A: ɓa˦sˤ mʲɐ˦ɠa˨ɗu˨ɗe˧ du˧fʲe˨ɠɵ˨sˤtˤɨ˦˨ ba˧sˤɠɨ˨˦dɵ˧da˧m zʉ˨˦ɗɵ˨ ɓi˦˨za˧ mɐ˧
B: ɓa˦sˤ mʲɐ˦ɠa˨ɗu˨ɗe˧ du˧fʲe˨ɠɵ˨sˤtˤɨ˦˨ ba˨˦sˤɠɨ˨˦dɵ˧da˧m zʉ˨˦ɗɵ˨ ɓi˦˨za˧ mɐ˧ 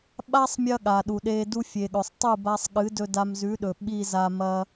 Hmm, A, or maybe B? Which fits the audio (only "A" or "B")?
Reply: A